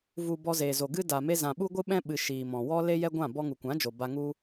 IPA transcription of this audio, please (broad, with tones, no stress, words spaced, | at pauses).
vu˨ bɔ˧zeː˨zo˨ɡɨ˦ da˨me˧ zã˨ ɓu˦ɡʷɨ˦ ɓɛ̃˦ɓɨ˨ ʃiː˨mɔ̃˨ wɔ˦ le˦jɛ˦ɡʷã˦˨ bɔ˧ŋu˨kʷã˨˦d͡ʒo˨ ba˧ŋu˦